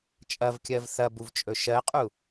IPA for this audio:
t͡ʃʼɐvkʲɜv θɐbuvt͡ʃʼɵ ʃɜqʼu

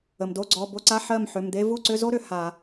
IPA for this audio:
ə˩mdo˧˥˧ ɡ͡ǀɔ˩˧˩bo˧˥˧ǀa˧˥˧ ħɜ˥˩mħʏ˩˧˩md̪e˥ vu˥˩ǀʏ˧˥˧zo˥ ɾʏ˩ha˧˩˧

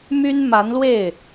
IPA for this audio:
my˥n ma˧˥nlwe˥˩ɪ̯

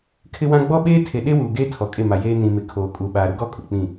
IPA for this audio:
kʰɪ˦wã˦ ɡ͡bɔ˦ɓeː˦tʰe˨ ɗe˦wuː˨ ɡeː˦ tʰɔ˨kʼe˦˨ma˨jeː˦ nĩ˨mɪ˨ kʰoː˨kʼu˨ ɓaː˨ɾʊ˦ɡɔ˦ kʼʊ˨k͡pĩ˦˨

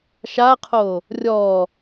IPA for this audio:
ʃaqʰo | rʲɔ

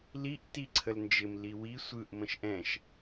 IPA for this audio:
liʔ tiǀʰəlnd͡ʒɪm liwi sʷɯʔ mə̃ʃʔɛ̃ʃ

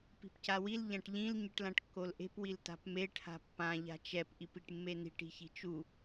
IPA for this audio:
pi̤pcawil ʎãʈʎĩl ɲɯʈlãʈkːolʔe̤p wilta̤pme ʈʰa̤pːã ʎa̤t͡ʃɛp ʔipiʈmːeni̤ʈ i̤çi̤t͡ʃu

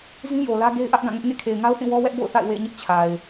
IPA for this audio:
zĩ˦jo˨lä˦ ɡe˦ɪ̯ʔä˦ʔɡã˦˨ŋʊ˦ʔ ŋḛ˦˨kʰe˨ɪ̯ŋa˦ʊ̯θĩ˦˨ wɔ˦wɛ˦ʔ bo̰˦˨ʊ̯θa̰˦˨ɪ̯ wḛ˦˨ɪ̯ɲɪ˦ʔ t͡ɕʰa˨ɪ̯

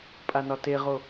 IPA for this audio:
pʼanɒteʁo

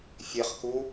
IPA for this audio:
fʲeχku

